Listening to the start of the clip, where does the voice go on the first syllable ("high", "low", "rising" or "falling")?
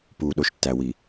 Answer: low